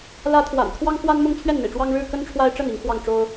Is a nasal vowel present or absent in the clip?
absent